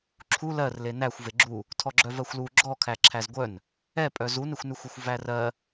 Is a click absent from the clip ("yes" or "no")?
no